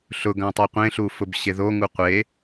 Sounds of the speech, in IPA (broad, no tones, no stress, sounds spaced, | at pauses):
ɬ ʊ ɡ ã tˤ ɜ qʷ ẽ ɬ u f ʊ b ɕ e ð o ŋ u qʷ e